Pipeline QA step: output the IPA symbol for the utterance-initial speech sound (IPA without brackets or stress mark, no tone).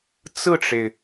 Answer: t͡s